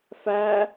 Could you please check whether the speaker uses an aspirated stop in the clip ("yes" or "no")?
no